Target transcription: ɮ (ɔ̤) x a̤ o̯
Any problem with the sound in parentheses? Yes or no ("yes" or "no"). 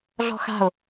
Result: no